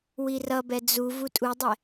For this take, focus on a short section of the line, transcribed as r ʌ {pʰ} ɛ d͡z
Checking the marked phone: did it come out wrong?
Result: yes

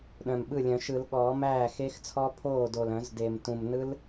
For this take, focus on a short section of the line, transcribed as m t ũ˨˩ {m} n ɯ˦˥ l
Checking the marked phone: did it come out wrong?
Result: no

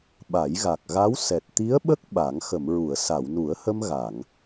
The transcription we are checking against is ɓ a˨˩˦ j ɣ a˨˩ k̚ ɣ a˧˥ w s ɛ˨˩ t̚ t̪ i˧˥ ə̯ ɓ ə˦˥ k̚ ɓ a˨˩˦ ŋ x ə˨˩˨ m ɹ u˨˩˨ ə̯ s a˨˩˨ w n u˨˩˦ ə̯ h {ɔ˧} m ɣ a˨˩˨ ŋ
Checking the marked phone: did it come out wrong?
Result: yes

